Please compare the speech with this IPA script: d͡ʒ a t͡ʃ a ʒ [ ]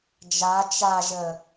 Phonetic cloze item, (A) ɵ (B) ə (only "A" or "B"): B